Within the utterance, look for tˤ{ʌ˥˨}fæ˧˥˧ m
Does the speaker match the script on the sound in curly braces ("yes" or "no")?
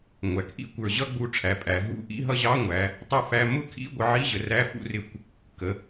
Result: yes